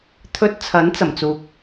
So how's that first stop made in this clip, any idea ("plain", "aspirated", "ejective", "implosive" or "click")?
aspirated